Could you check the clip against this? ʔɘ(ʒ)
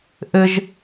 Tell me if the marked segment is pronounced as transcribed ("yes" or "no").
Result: yes